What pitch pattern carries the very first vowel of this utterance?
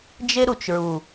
high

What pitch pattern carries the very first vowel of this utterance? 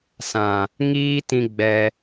low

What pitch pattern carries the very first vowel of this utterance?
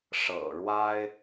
low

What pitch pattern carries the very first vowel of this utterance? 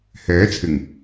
rising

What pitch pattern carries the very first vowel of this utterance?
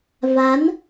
rising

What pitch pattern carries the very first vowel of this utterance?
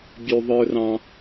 low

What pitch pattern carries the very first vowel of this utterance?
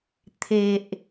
low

